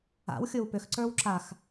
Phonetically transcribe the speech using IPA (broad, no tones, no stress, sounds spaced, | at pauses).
a̰ w xʲ o w p ʏ x ǀ ə˞ w ǁ a x